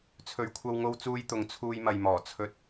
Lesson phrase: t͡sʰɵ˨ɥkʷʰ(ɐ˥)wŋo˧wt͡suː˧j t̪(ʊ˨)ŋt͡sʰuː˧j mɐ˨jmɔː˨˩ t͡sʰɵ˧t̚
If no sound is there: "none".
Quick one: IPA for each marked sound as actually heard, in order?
ɐ˧, ʊ˨

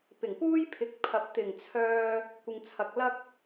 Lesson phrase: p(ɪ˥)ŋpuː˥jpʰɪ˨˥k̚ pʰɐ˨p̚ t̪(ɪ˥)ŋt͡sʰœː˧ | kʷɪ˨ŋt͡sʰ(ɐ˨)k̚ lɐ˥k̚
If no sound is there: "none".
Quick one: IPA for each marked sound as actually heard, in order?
ɪ˨˩, ɪ˨˩, ɐ˨

